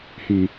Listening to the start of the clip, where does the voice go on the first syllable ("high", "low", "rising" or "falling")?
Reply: low